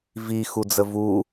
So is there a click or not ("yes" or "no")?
no